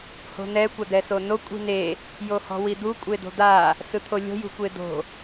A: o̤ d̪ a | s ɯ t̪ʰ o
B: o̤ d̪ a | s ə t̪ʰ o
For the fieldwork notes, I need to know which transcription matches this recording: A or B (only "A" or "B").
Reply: A